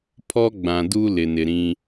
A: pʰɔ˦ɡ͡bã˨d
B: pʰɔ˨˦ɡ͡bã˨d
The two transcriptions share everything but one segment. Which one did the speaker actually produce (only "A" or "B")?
A